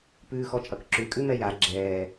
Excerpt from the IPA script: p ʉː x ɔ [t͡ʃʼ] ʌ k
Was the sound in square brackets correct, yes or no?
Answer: yes